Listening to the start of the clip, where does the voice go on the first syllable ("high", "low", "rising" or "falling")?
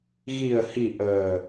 low